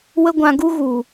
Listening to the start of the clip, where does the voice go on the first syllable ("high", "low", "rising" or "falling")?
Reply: high